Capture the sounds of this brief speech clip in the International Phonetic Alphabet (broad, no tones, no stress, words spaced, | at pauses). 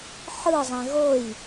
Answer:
ħɯzˤɛ̃ ɣoj